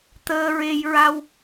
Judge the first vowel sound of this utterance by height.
mid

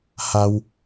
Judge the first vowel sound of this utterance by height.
low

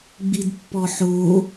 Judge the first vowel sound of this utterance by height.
high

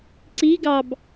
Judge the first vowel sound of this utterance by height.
high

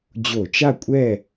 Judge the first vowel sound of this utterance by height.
mid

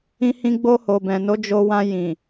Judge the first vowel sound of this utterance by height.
high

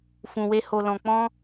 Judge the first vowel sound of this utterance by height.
high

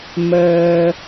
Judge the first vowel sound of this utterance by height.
mid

